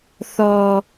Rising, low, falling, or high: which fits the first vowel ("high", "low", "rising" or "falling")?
low